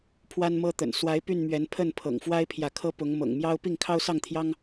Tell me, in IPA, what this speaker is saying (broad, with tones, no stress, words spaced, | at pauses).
pʰwa˦nmɤ˦t̪ə̰˨˩n swa˨˦ɪ̯ py˥˨nmɥɛ˨˦n pʰə˥˨npʰɤ̰˨˩ŋ fwa˦ɪ̯pʰjä˨kʰɤ˦pʊ˨˦ŋ mɤ̰˨˩ŋmjɑ˦ʊ̯ pi˥˨ŋkʰɑ˦ʊ̯sɑ˥˨ŋt̪ʰjɑ˦ŋ